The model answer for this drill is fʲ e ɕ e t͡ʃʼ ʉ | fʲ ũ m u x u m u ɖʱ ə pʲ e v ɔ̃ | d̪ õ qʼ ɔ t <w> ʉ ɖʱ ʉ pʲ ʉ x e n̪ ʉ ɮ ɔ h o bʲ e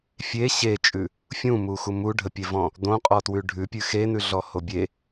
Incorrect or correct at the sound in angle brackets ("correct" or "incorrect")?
correct